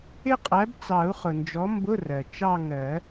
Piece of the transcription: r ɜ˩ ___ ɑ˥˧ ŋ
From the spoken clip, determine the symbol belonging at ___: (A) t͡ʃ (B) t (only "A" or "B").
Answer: A